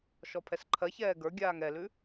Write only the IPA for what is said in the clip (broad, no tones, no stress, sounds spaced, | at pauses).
ʃ ɔ pʰ ɛ s ǃʰ ɜ ç ɛː ɡ ə˞ ɡʲ aː ŋ ɛ l ʉ